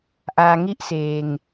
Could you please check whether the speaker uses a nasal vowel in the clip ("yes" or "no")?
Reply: no